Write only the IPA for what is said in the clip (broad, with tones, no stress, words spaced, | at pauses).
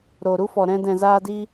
ɾo˨ɾu˦fɔ˨ ɾɛ̃˧ dɛ̃˨zaː˧di˧